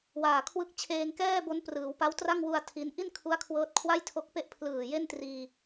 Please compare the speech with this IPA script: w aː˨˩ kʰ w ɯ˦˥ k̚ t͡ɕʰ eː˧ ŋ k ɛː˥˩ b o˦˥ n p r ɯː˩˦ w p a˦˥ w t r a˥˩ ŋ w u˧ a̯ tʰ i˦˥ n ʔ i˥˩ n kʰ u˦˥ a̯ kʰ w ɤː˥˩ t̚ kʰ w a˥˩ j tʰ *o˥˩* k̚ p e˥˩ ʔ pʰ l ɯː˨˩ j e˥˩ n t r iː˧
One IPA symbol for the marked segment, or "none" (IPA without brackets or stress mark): o˦˥